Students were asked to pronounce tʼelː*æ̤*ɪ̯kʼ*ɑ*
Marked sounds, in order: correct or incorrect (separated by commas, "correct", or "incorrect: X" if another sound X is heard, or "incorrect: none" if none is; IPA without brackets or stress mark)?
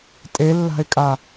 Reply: incorrect: a̤, incorrect: a